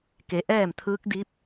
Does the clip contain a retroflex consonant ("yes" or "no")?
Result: no